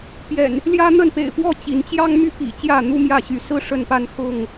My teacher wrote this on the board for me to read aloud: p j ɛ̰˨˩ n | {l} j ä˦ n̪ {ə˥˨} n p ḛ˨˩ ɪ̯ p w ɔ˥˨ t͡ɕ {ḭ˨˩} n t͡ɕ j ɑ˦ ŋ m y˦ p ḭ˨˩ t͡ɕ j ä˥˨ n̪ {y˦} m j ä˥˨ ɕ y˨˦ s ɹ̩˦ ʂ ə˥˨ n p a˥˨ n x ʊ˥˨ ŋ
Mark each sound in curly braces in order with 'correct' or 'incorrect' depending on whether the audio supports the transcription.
correct, correct, incorrect: i˨˦, incorrect: u˦

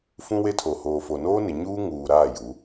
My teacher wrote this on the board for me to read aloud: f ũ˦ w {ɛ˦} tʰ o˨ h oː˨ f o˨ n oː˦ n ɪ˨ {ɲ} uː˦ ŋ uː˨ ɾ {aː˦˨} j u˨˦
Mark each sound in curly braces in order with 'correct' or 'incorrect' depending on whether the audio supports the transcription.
incorrect: e˦, correct, correct

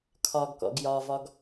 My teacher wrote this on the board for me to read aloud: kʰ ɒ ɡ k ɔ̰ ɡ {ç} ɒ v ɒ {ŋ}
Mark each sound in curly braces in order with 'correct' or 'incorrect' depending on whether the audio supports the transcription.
incorrect: j, incorrect: ɡ

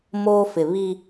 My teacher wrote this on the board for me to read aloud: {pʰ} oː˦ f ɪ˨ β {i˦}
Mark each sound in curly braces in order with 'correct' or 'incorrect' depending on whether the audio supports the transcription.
incorrect: m, correct

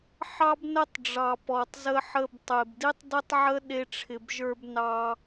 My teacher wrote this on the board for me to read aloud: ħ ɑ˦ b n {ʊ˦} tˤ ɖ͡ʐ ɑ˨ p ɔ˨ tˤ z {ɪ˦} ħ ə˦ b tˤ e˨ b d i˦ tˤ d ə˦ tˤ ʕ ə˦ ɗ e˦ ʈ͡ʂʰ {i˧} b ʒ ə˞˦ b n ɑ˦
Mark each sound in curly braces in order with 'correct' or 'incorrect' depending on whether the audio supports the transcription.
incorrect: ə˦, incorrect: ə˦, incorrect: ɪ˧

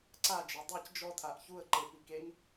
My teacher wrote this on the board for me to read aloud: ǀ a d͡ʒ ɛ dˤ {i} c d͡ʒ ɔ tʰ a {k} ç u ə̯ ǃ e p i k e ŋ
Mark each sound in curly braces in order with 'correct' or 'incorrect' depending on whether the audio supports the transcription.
correct, incorrect: ʔ

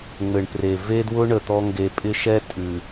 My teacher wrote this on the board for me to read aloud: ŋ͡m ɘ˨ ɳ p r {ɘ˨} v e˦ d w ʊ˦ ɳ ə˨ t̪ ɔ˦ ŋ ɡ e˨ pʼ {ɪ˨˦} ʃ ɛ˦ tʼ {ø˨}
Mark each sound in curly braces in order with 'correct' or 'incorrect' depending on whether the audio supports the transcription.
incorrect: e˨, incorrect: ɪ˦, incorrect: ʉ˨

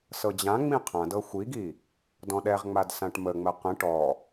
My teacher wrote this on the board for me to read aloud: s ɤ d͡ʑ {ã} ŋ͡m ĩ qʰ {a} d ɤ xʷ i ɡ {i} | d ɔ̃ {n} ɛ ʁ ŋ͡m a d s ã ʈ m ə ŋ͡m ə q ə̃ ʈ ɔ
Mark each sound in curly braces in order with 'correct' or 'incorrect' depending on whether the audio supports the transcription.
correct, incorrect: ã, correct, incorrect: ɗ

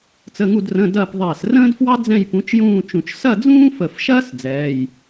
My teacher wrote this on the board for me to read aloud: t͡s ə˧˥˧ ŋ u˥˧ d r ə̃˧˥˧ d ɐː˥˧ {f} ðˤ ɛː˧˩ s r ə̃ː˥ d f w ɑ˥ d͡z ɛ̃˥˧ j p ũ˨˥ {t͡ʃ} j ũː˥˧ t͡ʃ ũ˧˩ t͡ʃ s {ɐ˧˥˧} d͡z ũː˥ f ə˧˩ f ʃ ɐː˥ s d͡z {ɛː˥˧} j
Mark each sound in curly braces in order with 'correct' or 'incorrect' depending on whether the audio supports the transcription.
incorrect: p, correct, incorrect: ɐ˥˧, incorrect: ɛː˧˥˧

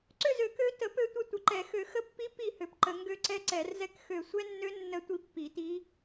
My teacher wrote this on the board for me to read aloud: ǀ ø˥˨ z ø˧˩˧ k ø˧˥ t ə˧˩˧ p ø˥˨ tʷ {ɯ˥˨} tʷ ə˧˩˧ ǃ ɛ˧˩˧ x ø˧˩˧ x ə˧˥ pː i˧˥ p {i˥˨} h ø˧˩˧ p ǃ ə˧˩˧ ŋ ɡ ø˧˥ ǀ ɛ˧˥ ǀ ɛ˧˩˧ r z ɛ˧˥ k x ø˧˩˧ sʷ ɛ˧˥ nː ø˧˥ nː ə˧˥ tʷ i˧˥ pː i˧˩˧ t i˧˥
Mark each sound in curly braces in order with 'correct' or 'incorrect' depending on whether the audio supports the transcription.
incorrect: ə˥˨, correct

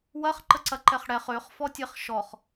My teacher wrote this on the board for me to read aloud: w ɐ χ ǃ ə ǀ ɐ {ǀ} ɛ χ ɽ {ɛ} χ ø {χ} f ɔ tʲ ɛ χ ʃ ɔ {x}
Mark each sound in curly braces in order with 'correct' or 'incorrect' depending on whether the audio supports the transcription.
incorrect: ǃ, correct, correct, incorrect: χ

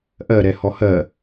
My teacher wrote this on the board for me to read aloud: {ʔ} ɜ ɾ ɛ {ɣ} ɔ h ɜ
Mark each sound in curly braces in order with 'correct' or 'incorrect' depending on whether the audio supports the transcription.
correct, incorrect: h

